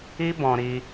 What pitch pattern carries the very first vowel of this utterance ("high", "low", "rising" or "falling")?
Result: high